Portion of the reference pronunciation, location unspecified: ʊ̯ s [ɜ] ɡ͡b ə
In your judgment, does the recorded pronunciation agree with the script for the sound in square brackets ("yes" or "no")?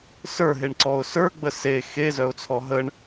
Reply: no